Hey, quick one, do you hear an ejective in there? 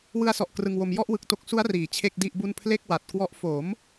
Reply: no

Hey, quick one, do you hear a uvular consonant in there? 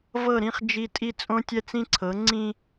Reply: yes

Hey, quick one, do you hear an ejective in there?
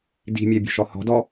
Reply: no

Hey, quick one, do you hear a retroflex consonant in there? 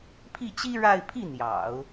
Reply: yes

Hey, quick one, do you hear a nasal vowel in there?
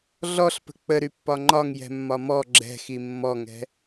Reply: no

